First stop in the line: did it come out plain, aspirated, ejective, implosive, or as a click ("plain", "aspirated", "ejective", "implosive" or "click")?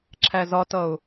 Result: click